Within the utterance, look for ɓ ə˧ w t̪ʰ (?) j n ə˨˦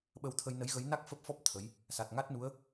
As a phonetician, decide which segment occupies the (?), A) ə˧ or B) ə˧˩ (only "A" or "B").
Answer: A